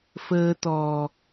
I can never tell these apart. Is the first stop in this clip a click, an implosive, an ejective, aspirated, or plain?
plain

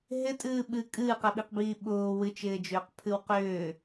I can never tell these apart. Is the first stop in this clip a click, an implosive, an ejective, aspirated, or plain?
ejective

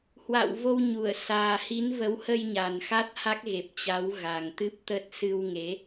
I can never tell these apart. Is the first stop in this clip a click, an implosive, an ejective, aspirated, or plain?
plain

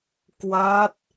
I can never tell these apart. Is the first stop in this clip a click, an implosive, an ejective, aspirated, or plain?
plain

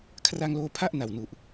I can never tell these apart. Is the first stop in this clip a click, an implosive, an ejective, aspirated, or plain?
aspirated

